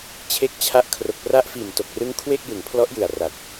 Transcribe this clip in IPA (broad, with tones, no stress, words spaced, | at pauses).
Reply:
t͡ɕʰe˦˥k̚t͡ɕʰa˦˥ʔ kʰro˨˩k̚pra˦˥ʔfiː˨˩m to˨˩k̚rɯ˦˥ŋ kʰwe˥˩k̚jɯ˩˦ŋpʰlɔ˦˥ʔjɯ˨˩a̯ ra˨˩t̚